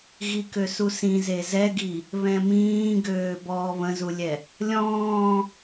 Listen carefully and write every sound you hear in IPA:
ɣ i k ø s u s ĩ z e z ɛ ɡ i | β ɛ̃ m ĩː ɡ øː b ɔː β ə̃ z u lʲ ɛ | lʲ ɔ̃ː

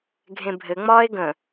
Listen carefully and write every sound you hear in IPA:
ɡʱ ẽ bʱ ɘ ŋ͡m ɒː e̯ ɡ ə̃

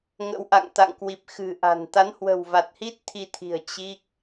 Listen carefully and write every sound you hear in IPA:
ŋ ə̰˧˥ w ʔ a̰˧˨ ŋ t̪ a̰˧˨ ŋ k w i˨˩ p̚ x ɨ̤˨˩ ʔ a̤˨˩ n t̪ a˨˦ n h w ə̤˨˩ w v a˨˩ t̚ h i˦˥ t̚ t̪ʰ i˧ t̪ʰ i̤˨˩ ə̯ t͡ɕ i˦˥ k̚

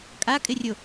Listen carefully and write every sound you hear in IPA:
kʼ a kʼ ɪ rʲ o

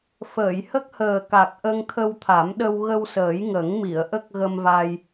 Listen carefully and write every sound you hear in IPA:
f əː˨˩˨ j h ə˦˥ k̚ h əː˨˩ k a˨˩ k̚ ʔ ə˧ ŋ t̪ʰ ə˧ w t̪ʰ a˨˩˦ m ɗ ə˧ w ɣ ə˧ w s əː˨˩˦ j ŋ ə˨˩˦ ŋ m i˨˩˨ ə̯ ʔ ə˦˥ k̚ ɣ ə˧ m v a˧ j

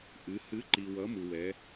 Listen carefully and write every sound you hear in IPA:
ʔ ɨ˩˧ h ɨ˩˥ ǃ i˩ w ʌ˩˥ m u˩ w ɛ˩˧

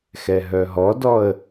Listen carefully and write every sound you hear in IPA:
x ɛ ɦ œ ɦ ɔ d ɔ ə̯

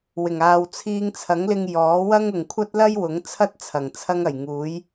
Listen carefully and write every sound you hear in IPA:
w ɪ˨˩ ŋ aː˨ w t͡sʰ iː˧ ŋ t͡sʰ ɐ˨˥ ŋ l ɪ˧ ŋ j ɔː˨˥ w ɐ˥ ŋ ʊ˨ ŋ kʷʰ ɐ˥ t̚ l ɐ˥ j w ʊ˨˥ ŋ t͡sʰ ɐ˥ t̚ t͡sʰ ɐ˨˩ ŋ t͡sʰ ɐ˥ ŋ ɐ˨˩ j ŋ uː˨˥ j

